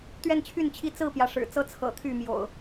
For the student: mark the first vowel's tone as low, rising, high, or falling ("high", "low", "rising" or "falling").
falling